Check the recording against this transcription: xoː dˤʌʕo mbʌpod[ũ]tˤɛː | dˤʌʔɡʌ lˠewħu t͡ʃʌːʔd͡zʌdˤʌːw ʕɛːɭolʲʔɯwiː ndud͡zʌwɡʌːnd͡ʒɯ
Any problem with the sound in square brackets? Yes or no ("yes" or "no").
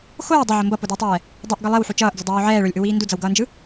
yes